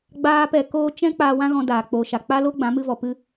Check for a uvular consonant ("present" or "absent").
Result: absent